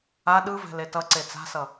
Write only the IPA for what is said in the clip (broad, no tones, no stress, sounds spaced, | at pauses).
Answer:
a ɗ ɯ v ɛ̤ l e t ʌ ǀ e t͡s a̤ s ʌ